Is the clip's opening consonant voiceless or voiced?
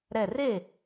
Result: voiced